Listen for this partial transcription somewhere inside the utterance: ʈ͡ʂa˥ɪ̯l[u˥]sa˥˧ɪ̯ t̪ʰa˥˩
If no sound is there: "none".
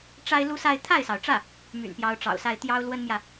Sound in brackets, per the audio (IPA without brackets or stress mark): u˥